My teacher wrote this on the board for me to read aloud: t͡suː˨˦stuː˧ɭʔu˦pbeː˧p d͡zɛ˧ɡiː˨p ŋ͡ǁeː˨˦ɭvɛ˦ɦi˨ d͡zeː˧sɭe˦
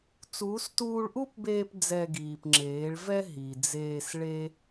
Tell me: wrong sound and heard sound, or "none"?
none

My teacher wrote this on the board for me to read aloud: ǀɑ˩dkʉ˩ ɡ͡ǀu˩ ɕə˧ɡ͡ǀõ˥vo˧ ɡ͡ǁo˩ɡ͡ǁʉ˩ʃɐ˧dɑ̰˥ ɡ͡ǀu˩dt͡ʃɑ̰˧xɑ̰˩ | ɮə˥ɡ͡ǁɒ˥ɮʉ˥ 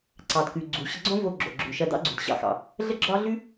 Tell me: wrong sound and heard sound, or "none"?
t͡ʃ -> ɕ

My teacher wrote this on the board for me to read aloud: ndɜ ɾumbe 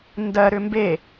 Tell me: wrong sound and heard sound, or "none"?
u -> ʏ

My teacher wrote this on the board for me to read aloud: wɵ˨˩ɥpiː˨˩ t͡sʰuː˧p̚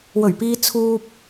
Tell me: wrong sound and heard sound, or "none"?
iː˨˩ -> iː˧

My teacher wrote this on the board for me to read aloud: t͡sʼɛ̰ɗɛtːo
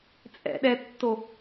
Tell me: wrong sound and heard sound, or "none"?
none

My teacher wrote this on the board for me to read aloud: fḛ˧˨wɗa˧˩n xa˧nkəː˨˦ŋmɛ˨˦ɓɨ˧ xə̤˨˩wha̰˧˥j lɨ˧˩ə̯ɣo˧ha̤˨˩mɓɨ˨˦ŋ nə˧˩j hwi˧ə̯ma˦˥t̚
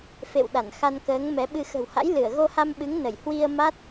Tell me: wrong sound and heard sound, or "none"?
a̤˨˩ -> a˧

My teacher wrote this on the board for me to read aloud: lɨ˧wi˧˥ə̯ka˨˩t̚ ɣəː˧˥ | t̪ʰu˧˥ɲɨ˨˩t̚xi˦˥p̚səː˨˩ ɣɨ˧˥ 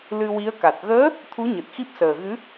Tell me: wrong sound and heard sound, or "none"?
none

